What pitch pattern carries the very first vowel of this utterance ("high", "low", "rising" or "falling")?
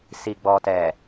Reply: low